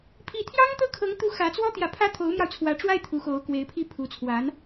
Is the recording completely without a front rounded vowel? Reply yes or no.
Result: yes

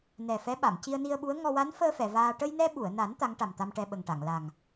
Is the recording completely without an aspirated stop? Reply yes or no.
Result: yes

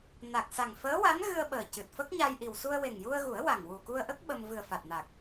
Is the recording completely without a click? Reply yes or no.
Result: yes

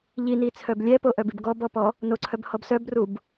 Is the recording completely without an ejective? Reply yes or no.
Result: yes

